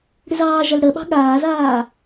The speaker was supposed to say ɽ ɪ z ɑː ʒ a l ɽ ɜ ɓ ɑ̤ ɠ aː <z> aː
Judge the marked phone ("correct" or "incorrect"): correct